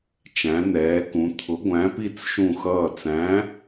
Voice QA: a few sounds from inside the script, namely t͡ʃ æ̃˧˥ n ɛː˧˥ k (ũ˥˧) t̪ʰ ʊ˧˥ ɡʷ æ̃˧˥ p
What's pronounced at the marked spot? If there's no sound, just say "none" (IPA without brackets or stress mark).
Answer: ũ˧˥